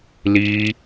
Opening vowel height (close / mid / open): close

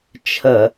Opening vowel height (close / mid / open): mid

